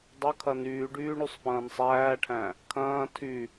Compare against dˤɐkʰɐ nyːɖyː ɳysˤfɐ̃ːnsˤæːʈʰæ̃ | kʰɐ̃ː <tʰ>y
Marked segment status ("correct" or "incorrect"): correct